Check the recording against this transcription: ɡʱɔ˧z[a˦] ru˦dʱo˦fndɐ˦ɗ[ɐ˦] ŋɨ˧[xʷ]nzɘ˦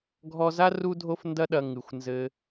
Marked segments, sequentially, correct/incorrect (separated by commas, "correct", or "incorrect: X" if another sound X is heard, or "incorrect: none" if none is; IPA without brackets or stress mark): correct, incorrect: ɐ˧, correct